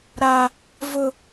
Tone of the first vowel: high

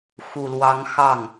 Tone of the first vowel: low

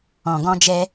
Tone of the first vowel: low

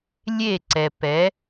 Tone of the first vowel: falling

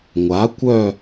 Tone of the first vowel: rising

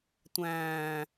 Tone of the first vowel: low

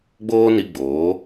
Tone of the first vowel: high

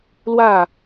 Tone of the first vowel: falling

